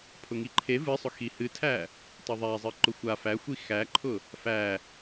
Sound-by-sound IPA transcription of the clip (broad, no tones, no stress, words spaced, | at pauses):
pʰʊŋiǃʰe vɨsˤʊ xihɨtʰæ | tˤʊðˤæzˤɨ ǃʊxʷa fæxʷi xæǃʰʊ | fæ